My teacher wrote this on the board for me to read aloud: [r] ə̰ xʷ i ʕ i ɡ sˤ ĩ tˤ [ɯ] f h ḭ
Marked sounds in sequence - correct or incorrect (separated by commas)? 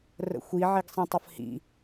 correct, incorrect